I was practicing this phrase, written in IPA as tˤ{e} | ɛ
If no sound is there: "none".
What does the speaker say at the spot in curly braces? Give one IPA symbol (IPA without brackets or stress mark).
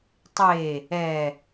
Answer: e